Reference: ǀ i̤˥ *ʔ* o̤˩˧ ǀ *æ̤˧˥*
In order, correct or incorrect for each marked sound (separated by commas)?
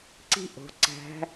correct, correct